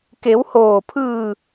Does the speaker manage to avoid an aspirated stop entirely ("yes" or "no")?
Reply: no